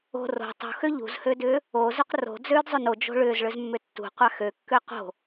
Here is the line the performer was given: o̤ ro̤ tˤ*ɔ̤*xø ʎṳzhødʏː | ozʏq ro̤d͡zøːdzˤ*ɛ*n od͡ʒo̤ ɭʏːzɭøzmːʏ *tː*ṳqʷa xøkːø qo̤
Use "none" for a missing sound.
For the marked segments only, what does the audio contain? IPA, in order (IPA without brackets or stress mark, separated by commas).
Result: o̤, ø, tː